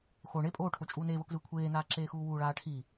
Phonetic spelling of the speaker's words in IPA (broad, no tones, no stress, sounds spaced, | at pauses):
x o ɳ e pʼ oː ʈʰ o t͡ʃʼ uː n eː v ɤ k z ɯː kʷʰ eː n aː ǁ eː x uː w uː ɭ aː ʈʰ i